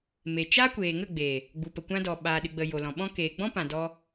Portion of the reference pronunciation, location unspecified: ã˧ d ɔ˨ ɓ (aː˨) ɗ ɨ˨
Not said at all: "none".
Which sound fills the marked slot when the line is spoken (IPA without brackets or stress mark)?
aː˨